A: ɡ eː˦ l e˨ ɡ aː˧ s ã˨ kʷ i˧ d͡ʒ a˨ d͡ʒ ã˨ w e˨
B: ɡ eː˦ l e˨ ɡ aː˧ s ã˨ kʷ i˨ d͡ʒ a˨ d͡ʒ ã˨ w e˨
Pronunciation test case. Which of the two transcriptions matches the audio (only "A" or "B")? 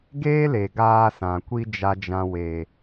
A